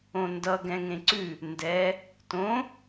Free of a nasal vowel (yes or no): no